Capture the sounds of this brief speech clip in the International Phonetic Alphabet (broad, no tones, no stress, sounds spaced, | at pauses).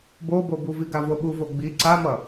b o b o b u v i ɡ a v o ɓ u v o ɡ͡b i ǀ a m ʌ